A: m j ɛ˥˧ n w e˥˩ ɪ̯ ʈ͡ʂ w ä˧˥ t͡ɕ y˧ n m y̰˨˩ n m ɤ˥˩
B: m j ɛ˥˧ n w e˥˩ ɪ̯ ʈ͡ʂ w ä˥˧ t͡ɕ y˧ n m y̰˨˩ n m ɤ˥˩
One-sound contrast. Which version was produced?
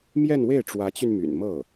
A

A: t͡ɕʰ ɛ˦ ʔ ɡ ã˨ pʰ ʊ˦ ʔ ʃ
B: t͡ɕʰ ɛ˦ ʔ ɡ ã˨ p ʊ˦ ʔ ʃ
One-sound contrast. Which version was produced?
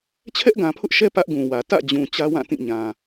A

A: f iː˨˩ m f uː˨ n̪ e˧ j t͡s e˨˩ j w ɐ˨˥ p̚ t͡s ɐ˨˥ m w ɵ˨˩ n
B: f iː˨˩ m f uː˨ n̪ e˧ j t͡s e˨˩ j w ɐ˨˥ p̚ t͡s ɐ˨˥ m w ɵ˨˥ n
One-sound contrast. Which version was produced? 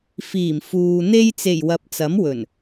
A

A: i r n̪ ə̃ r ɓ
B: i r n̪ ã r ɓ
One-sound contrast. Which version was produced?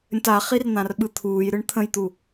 B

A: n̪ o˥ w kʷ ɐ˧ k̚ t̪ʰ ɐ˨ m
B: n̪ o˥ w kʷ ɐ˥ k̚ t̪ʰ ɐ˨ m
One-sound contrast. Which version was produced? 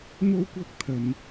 B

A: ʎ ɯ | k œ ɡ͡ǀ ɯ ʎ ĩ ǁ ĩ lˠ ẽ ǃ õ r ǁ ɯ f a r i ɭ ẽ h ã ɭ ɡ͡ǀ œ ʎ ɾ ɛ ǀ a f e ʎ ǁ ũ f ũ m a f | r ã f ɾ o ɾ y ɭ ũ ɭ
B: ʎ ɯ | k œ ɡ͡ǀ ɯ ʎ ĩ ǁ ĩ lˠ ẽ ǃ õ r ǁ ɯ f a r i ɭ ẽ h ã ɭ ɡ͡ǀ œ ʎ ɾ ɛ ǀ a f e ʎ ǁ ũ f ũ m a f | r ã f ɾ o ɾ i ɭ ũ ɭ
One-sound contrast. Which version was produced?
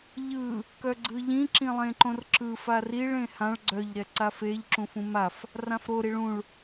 B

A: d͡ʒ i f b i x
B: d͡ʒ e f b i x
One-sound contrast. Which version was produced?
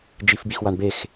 A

